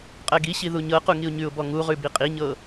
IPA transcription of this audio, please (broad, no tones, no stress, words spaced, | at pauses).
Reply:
qʼɜɡiɕi ðuɲɤqu ŋiʊ̯ɲʉʊ̯bɔ ŋuʁʉ biqʼiɲɤ